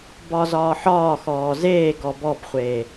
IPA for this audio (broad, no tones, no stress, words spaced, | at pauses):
bɒzɒːħɒːxɔː zeː ɡɔbɔbχʷeː